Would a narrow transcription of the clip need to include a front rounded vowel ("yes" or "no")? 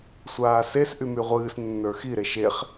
yes